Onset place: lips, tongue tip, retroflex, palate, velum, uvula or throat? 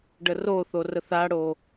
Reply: retroflex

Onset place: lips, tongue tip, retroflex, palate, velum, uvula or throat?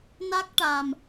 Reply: tongue tip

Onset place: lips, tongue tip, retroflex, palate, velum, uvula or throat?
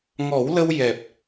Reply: velum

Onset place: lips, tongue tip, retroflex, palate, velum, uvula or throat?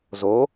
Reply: tongue tip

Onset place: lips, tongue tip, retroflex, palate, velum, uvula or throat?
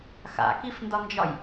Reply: velum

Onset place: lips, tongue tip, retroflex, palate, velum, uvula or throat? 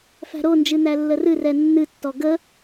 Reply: lips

